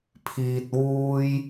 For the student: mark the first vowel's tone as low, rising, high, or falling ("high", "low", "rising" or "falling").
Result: low